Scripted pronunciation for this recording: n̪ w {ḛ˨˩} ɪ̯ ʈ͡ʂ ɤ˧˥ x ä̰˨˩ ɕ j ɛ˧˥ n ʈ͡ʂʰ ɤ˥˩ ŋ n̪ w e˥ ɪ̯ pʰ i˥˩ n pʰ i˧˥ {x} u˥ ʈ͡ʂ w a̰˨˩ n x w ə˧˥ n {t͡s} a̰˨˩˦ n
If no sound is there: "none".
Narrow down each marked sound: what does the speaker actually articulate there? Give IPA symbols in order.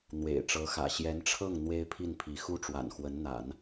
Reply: ḛ˨˩, x, n̪

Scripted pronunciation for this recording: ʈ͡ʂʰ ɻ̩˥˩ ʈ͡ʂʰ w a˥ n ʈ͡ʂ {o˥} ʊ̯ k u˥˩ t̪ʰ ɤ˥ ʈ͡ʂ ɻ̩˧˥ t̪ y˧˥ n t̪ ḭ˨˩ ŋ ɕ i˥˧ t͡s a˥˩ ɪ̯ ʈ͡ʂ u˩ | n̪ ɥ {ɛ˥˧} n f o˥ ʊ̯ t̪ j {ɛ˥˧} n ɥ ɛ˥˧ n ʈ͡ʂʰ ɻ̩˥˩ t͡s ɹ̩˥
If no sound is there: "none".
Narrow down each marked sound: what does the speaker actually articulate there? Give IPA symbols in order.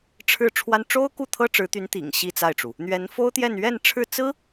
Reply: o˥, ɛ˧˥, ɛ˥˧

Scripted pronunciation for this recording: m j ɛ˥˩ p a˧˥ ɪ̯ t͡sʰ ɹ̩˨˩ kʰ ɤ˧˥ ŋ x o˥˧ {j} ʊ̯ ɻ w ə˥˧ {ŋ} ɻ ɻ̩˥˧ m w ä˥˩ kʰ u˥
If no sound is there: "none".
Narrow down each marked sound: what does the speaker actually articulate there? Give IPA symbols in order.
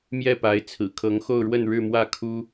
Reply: none, n

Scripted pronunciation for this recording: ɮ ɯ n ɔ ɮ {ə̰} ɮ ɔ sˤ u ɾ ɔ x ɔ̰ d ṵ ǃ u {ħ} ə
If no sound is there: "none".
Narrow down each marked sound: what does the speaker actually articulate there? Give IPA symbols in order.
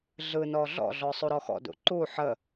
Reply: ɔ̰, ħ

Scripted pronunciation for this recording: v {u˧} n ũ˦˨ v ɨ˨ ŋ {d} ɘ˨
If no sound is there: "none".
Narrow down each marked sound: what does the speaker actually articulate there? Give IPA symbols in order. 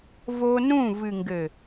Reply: o˧, ɡ

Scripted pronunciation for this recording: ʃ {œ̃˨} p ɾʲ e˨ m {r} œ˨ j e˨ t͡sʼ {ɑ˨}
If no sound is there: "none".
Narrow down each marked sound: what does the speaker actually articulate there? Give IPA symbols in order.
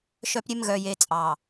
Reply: œ˨, ɣ, ɑ˨

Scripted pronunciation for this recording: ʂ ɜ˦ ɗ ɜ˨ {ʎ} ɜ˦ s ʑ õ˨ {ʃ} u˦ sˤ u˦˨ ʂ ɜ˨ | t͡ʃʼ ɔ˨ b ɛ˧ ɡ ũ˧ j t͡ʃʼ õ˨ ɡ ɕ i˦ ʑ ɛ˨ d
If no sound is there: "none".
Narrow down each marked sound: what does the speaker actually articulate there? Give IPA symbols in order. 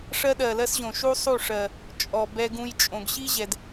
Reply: l, ʃ

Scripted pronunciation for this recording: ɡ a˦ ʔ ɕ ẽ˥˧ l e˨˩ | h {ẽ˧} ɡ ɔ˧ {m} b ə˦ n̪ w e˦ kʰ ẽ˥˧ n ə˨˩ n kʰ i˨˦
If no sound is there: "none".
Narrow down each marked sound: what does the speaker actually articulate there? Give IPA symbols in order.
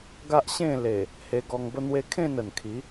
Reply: e˧, ŋ

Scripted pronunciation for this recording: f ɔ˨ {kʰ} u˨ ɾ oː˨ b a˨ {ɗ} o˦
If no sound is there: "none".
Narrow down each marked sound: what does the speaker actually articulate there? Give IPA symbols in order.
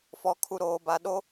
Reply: kʰ, ɗ

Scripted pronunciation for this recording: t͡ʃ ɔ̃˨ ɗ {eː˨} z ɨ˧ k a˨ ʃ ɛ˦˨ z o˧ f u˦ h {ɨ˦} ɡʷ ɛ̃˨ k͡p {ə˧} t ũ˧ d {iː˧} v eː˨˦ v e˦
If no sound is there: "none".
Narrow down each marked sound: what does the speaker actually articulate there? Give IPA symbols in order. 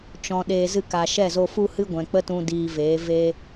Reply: eː˨, ɨ˦, ə˦, iː˧

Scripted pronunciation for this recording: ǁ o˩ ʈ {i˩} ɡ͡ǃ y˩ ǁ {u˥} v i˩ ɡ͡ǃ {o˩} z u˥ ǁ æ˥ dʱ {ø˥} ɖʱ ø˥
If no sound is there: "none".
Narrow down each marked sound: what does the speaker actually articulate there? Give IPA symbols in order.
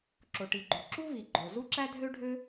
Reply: i˩, u˥, o˩, ø˥

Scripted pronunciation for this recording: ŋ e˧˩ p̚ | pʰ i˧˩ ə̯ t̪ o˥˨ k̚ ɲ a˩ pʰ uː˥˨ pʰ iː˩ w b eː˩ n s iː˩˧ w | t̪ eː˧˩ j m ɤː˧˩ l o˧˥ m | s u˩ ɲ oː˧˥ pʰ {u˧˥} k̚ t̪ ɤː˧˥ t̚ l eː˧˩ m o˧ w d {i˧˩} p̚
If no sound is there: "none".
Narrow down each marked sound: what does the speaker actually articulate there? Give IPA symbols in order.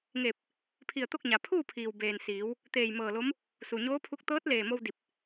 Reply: u˧˥, i˧˩

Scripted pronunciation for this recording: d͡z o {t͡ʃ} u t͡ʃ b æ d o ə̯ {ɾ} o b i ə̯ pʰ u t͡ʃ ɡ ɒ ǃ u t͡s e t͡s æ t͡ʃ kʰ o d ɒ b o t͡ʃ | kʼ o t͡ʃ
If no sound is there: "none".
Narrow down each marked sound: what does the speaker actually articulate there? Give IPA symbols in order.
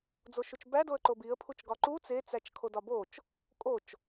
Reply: ʃ, ǃ

